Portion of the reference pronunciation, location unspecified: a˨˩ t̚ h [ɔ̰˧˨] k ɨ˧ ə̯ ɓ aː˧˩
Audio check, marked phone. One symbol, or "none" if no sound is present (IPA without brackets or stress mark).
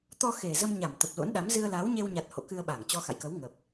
o̰˧˨